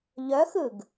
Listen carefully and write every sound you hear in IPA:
ʎ œ x ɯ ɡ

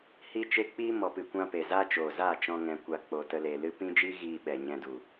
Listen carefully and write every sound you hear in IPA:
h i˦ t͡ʃ e˦ k͡p iː˦ m ɔ˨ p ɨ˨ kʷ ã˧ p e˨ z a˦ t͡ʃ oː˨ z aː˦˨ t͡ʃ ɔ̃˧ ŋ ɛ̃˨ kʷ a˨ k͡p o˨ t ə˧ l e˨ l ɨ˦ p ĩ˦ d͡ʒ iː˦ ɣ iː˧ ɓ ɛ˨ ɲ ɛ̃˧ d u˨

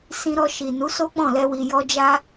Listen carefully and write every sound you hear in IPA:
s ĩ˧ ɾ ɔ˧ ʃ i˨ n u˨˦ s o˦ k͡p ɔ̃˦˨ l ɛ˧ w i˨ j ɔ˧ d͡ʒ a˦

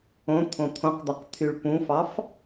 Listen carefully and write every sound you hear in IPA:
õ t̪ʰ õ t̪ʰ õ q d̪ ɑ q t̪ʰ y ɭ p ũ f ɑ f

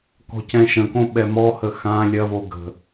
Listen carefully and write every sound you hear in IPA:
k ɔ̤ c ɛ̃ ʃ ə̃ k õ ɓ ɛ m ɔ h ə x ã lʲ ɐ v o ɡ ə̤

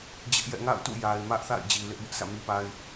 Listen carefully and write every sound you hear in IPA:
d͡ʑ ɪ˦ ʔ j ɛ̰˦˨ ŋ a̰˦˨ ʊ̯ t ṵ˦˨ j a˨ ɪ̯ m ä˦ ʔ θ a̰˦˨ ɪ̯ d͡ʑ i˨ l ɪ˦ ʔ b ʊ˦ ʔ sʰ ä̰˦˨ m i˦ p a˦ ɪ̯

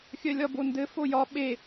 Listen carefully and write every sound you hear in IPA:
xʲ œ lʲ ɒ b o n d ɘ f o j ɒ ɓ e

